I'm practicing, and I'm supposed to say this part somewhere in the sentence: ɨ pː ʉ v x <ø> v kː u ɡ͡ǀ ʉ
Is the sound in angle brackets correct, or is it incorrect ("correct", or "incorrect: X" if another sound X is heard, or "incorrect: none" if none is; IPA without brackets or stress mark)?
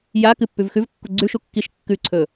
incorrect: ʉ